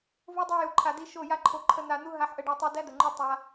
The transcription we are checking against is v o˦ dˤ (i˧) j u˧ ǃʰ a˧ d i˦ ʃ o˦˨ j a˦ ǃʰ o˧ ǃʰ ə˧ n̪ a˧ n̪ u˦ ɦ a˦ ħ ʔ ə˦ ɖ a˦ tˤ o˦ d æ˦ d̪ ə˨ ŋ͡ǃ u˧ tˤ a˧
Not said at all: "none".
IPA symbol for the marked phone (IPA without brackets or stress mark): i˧